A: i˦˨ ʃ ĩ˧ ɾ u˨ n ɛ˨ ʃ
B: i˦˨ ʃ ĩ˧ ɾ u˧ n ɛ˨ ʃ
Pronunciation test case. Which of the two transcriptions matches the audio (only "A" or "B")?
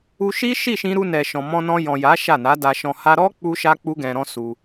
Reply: B